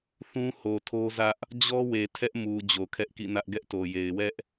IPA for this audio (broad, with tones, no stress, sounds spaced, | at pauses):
θ ũ˦ h o˨ tʰ o˦ z ä˦ ʔ | d͡ʑ ɔ˦ w e˨ tʰ ɛ˦ ʔ m u˨ d͡ʑ o˨ kʰ ɛ˦ ʔ k ḭ˦˨ n ä˦ ʔ ɡ ɛ˦ ʔ t o˨ j e˨ ɪ̯ w ɛ˦ ʔ